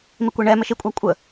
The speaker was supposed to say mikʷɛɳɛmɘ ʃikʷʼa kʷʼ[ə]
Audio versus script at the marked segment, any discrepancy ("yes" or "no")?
no